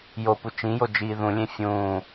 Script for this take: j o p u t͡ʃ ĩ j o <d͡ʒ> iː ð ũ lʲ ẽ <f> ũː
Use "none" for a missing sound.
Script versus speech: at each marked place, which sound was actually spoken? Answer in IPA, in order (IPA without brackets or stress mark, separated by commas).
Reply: d͡ʒ, fʲ